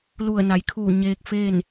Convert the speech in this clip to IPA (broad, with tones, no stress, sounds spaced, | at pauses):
l u˧˩ ə̯ n a˩˧ j kʰ uː˧˩ ɲ eː˧ k̚ f eː˥˨ n